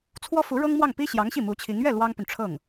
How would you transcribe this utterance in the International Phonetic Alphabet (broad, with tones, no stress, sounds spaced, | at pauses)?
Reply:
t͡sʰ w ɔ˥ f u˧˥ ɻ ɤ˥ ŋ m w ɑ˥˩ ŋ p i˥ ɕ j ɑ˧˥ ŋ ɕ i˥˩ m u˧˥ t͡ɕʰ i˧˥ ŋ ɥ ɛ˥˩ l w ɑ˥ ŋ p y˨ n ʈ͡ʂʰ ɤ˥˩ ŋ